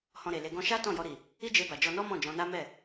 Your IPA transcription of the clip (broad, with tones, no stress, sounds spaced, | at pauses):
h ɔ̃˧ ɾ e˨ l e˧ ɡ ɔ̃˧ ʃ a˦ t ɔ̃˦˨ j ɔ˧ ɾ i˨ | i˦ d͡ʒ e˧ b a˨ d͡ʒ ɔ˧ n ɔ˦ m ɔ̃˦˨ d͡ʒ ɔ̃˧ n a˦ m ɛ˦˨